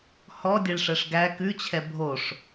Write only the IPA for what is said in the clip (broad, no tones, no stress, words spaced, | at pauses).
hɔdʲeɭʂɛʂ ɡæ kʉt͡ɕʰɛ bʱoʂ